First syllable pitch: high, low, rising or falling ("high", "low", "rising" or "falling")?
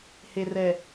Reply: low